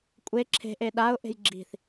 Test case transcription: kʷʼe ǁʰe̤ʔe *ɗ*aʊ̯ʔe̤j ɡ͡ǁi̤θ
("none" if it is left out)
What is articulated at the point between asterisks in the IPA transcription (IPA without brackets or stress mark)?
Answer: ɗ